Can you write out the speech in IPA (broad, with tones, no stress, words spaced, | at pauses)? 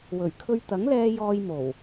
wɵ˨˩ɥkʰɵ˧ɥt̪ɐ˨˥ŋlɛː˧ jɔː˧jmo˨˩w